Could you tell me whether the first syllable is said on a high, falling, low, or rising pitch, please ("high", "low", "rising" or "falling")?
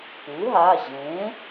rising